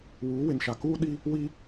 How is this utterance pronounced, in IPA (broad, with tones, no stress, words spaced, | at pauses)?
wuː˨˦ wɪ˨nʃa˨ kuː˦ ɗi˦ | wi˦